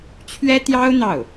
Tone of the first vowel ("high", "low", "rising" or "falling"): high